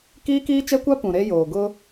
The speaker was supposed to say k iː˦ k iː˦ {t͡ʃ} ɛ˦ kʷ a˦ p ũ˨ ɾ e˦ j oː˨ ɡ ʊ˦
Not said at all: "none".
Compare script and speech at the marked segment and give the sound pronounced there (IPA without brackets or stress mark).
t͡ʃ